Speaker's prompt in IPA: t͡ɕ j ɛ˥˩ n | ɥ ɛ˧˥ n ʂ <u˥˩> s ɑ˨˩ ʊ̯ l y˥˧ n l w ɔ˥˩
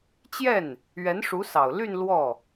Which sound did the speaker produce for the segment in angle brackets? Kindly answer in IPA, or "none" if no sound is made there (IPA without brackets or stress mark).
u˧˥